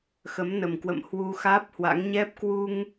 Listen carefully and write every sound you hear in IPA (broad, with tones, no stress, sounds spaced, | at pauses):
x ə˨˦ m n ə˨˩ m k w ə̰˧˨ m h w u˧ x aː˦˥ p̚ h w a̰˧˥ ŋ ɲ ɛ˦˥ p̚ k w u˧ ŋ